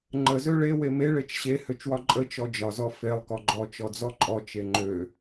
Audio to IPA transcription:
ŋ͡ǃəzø ɭe weme ɭet͡ʃɕe høt͡ʃwɒǃʼə t͡ʃɔd͡ʒɒzɔ felˠ kɔɡ͡ǃɔ t͡ʃɔd͡zɔǃʼɔ t͡ʃeŋ͡ǃø

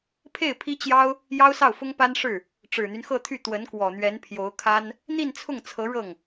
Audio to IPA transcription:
pʰe˥˩ɪ̯pʰi˥t͡ɕjɑ˥ʊ̯ | jɑ˥ʊ̯sɑ˥˩ʊ̯ fʊ˥ŋpa˥nʂɻ̩˥˩ | ʈ͡ʂɻ̩˨˩n̪y˦nxɤ˥˧t̪ʰy˥˩ t̪wə˧˥nkwɔ˨˩n̪ɥɛ˧˥n pʰjo˧˥ʊ̯kʰa˥n | n̪i˥˧nt͡sʰʊ˥˩ŋ t͡sʰɤ˧˥ ɻɤ˥˩ŋ

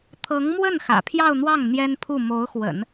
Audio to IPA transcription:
t̪ʰɤ˧˥ŋmwə˥˩n xä̰˨˩pʰjɑ˥˧ʊ̯n̪wɑ˥˩ŋ n̪jɛ˥npʰu˥˩ mo˧˥ʊ̯xwə̰˨˩˦n

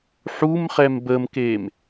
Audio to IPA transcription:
ħumχɛm bəmkem

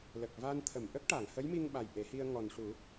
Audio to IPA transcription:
lə˨˩k̚ va˧n t̪ʰə˨˩˨mʔə˦˥k̚ʈa˨˩˨ŋ hə˧˥jmi˧ŋɓa˨˩j ʔe˨˩˦hi˧ə̯ ŋɔ˨˩nʂu˨˩˦

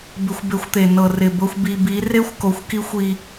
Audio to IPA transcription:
bɪ˧xʷbe˧xʷt̪e˨ nɤ˨rɪ˨bɤ˧xʷ bi˨bi˨˦ re˦xʷ ko˧xʷki˦xʷ i˧

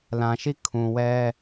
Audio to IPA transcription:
lã˨ʃi˦˨kʰũ˨wɛ˦

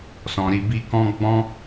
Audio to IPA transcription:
sɔ̃˧ɾi˧bi˦ kɔ̃˦ ɡ͡bɔ̃˦

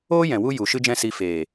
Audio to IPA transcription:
oː˦jɛ̃˨ wu˦ju˨ʃɨ˦d͡ʒɛ̃˦ si˧ feː˨

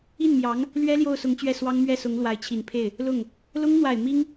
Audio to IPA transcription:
i˥˩nmjɑ˧˥ŋ | lɥɛ˥ ljo˥˩ʊ̯sʊ˧˥ŋt͡ɕɥɛ˥˩ swɑ˥ŋmɥɛ˥˩sʊ˧˥ŋ lwa˧˥ɪ̯t͡ɕʰi˨˩npʰe˥˩ɪ̯ | lʊ˥˩ŋ | lʊ˥ŋn̪wa˨˩ɪ̯ mi˥ŋ

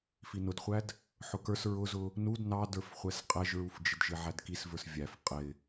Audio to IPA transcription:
finʊdχʷæd | ħʊkə˞s ɹʊzʊ | nud nɑdə˞fχʷɛs qʼɛʒɹufd͡ʒɪdʒɪ ʕædkisvə˞s vʲæf qʼɪ

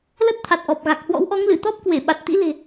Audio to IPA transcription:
lə˦˥t̚t̪ʰa˨˩t̚ʔɔ˨˩p̚ɣa˨˩k̚ hwɔ̰˧˥wʔɔ˨˦ŋlɨ˧˩ t̪ɔ˦˥p̚kwe˧˩ɓa˨˩t̚ t̪ḭ˧˥le̤˨˩

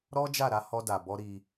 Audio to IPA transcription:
ɾɔ˦d͡ʒa˦˨ ɾa˨˦ hɔ˧da˨bɔ˧ ɾi˧

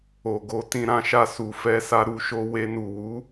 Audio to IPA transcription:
o˨ɡo˨˦ tĩ˧ɾã˧ʃa˧ su˨fɛ˧sa˧ɾu˧ ʃo˧we˧ nu˨wu˨˦

